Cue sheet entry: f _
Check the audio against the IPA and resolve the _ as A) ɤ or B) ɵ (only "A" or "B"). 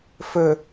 B